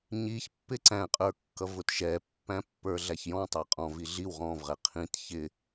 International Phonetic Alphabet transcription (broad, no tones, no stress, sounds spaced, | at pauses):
ɲ i ç pː ɪ ǀ æ̃ qʼ ə˞ kː ʌ v ʊ t ʃ ɛ pː æ̃ pː ə˞ ɮ æ ç j ɔ̃ tˤ æ qʼ ɔ̃ v i ɮ i w ʁ ɔ̃ v ʁ ɛ qʰ ĩ t ç ɪ